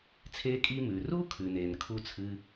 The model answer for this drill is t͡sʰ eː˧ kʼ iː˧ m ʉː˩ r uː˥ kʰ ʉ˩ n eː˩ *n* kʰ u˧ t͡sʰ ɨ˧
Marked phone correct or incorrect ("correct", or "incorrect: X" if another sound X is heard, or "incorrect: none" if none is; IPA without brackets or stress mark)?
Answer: correct